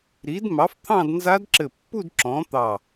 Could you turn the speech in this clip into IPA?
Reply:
ɾi˨˥d mɑ˨˥ft̪ʰɑ̃˥˧d nza˦˥dǁɘ˧˩pːu˥˧d ǁɔ̃˨˥t̪ɑ˧˩

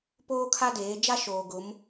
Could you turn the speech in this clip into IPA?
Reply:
poː˦kʰa˦deː˨˦ d͡ʒa˦ ʃoː˨ɡʊ˨˦m

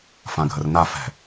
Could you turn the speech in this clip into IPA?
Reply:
fãɡʱərna fɛ̤

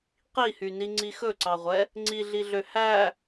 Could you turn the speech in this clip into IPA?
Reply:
qihyni ŋ͡ǀixɵǀɑʁʷɛ | ŋ͡ǀiɮiɮø hæ

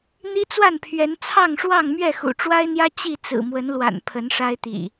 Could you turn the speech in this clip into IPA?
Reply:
n̪i˦t͡swa˥˨npʰɥɛ˨˦n t͡sʰɑ˥˨ŋʂwɑ˥˨ŋ mɥɛ˥˨xṵ˨˩ʈ͡ʂwa˦ɪ̯n̪jä˦ t͡ɕi˥˨ t͡sɹ̩˨˩mwə˨˦nlwa̰˨˩n pʰə˨˦nʂa˦ɪ̯t̪ḭ˨˩

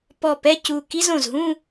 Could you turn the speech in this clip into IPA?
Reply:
pɔ˧˩pɛ˥˧ cu˧˩ ki˥zõ˧˩zɦũ˥˧

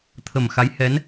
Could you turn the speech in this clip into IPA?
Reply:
t̪ʰə˨˩mxa˧˥jhɛ˧˥n

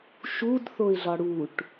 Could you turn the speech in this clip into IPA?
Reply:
ʃudθoɪ̯ɮɒ ɽuʈ

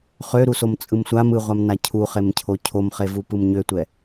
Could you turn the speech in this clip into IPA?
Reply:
χøɾusom t͡sʼɯmsʷam ɯʁʷamna cʰuχemcʰo cʰomχevu pɯmɲøtʷɛ

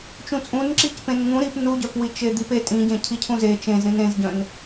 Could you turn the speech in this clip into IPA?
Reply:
t͡ʃũt͡sʼũnǁicpẽn ŋũ ɾip nuɟœpwi t͡ʃed̪ipe tʼĩɟẽ cʰicʰũze t͡ʃẽzɾĩn ẽzɟœ̃n

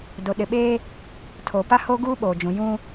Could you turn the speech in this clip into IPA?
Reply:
do˨ɗɪ˨ɓeː˦ | tʰo˨pa˦ho˦ ɡuː˦ɓoː˨d͡ʒũ˨ jũ˦

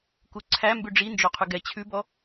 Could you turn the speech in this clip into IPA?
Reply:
kuǀʰæ mbʉɖ͡ʐi nd͡ʒoqʰʉɡɛ t͡ɕʰʉbɔ

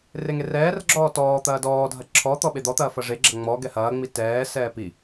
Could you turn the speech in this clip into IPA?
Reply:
reŋerɛːrɡ͡ǁɔː tɔː t̪ɐːdɔːdʱɐ ǁʰɔ t̪ɔɓed̪ɔt̪ɐː fɐʐeɡ͡ǁɐ ŋ͡mɔ ɡɛhɐːŋ͡mi tɛːsɛː pi

